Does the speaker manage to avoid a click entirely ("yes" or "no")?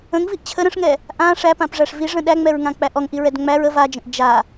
yes